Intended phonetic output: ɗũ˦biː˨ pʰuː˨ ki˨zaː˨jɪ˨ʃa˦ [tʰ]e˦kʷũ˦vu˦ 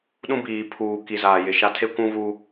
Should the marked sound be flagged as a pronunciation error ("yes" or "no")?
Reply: no